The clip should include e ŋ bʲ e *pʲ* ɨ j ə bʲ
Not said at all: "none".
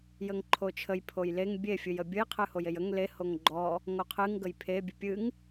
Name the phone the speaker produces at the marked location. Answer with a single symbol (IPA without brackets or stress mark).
fʲ